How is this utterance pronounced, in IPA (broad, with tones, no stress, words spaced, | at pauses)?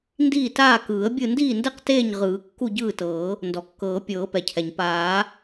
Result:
ndiː˥˨taː˥˨ kɯː˨˩˦ə̯bʲɯ˥˨ ndiː˥˨ndɛ˥˨q teː˥˨ɲʁɯː˨˩˦ kːu˥˨ɟɯː˥˨tɤː˨˩˦ | ndɔ˩kːɤː˨˩˦ pʲɤː˨˩˦pɛ˩cʰɛ˩ɲ paː˨˩˦